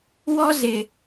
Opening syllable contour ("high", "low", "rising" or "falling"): high